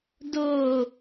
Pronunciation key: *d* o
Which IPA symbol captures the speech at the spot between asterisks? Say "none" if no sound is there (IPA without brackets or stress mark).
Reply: d